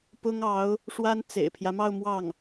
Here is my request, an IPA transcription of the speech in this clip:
p ʊ˥ ŋ ɑ˧˥ ʊ̯ | ʂ w a˥ n t͡s ḛ˨˩ ɪ̯ pʰ j ä˦ m ɑ˥˧ ʊ̯ m w ɑ˥˩ ŋ

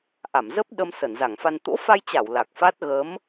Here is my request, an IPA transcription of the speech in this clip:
ʔ a˧˩ m z ə˦˥ p̚ ɗ ə˧ m s ə˧˩ n z a˧˩ ŋ f a˧ n t̪ o̰˧˥ f a˧ j t͡ɕ a˧˩ w l a˨˩ k̚ f a˦˥ t̚ ɣ ə˨˦ m

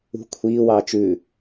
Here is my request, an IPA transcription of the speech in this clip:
ṳ kʷʰ iː w ɑː t͡ʃ ʉ

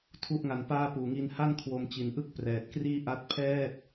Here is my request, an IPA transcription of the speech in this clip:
tʰ u˥˩ ʔ ŋ a˧ n p aː˥˩ p uː˨˩ ŋ i˧ n h a˥˩ n kʰ w o˧ m t͡ɕ i˩˦ n ʔ ɯ˥˩ k̚ p r ɛː˨˩ t̚ k r iː˥˩ ʔ a˦˥ t̚ pʰ ɛː˥˩ t̚

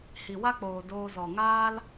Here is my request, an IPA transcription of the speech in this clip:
h i˨ w a˦ k͡p oː˨ d oː˧ z ɔ˨ ŋ aː˦ l

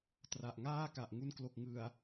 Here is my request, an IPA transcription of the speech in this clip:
t r a˨˩ ʔ ŋ aː˥˩ k a˨˩ ʔ ŋ u˧ n k l o˨˩ k̚ ŋ ɯ˨˩ a̯

